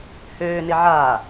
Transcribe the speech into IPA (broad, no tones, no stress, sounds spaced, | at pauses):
h øː n ɪ ʕ aː